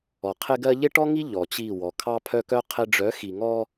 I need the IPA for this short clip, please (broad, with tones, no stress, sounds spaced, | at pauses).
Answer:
ɔ˨ qʰ ɪ˦ ɡ ɜ˦ ʎ ɪ˦ ʈ ɔ˦ ŋ i˦ ʎ ɔ˨ t͡ɕ i˦˨ w ɔ˨ kʰ ɑ˦ pʰ œ˦ k œ˦ qʰ ɪ˦ ɖ͡ʐ œ˨˦ x i˨ ŋ ɔ˦